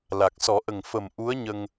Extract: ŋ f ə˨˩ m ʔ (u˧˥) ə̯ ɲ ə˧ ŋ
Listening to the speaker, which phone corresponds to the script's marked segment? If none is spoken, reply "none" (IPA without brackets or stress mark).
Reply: u˧˥